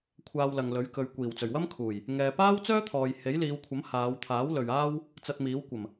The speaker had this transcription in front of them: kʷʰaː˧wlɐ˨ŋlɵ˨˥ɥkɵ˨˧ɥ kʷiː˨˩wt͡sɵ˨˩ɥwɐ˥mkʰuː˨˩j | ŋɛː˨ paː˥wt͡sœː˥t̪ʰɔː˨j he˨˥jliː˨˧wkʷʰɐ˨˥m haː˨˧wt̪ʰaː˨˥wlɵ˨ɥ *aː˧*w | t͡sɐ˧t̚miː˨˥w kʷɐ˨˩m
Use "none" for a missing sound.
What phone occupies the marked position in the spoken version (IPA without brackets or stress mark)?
aː˥